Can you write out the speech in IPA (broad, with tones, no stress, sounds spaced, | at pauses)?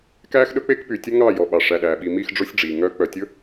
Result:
k æː˦ x ɗ ɵ˦ k͡p e˦ k p y˨ tʲ ɵ˦ ŋ ɑ˦˨ j ɔ˨ ɓ ɑ˨ ʂ æ˨ ɗ æː˨ ɓ i˨ m i˦˨ x ɖ͡ʐ o˦ sʲ ɖ͡ʐ iː˨ ŋ œ˦ k͡p œ˨ tʲ ɵ˦